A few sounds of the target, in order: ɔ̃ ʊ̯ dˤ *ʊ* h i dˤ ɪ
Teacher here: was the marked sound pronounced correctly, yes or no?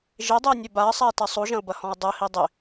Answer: yes